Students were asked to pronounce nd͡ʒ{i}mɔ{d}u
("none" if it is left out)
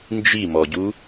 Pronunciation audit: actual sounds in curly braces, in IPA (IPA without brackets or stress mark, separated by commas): i, ɟ